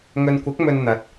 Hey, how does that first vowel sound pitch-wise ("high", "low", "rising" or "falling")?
low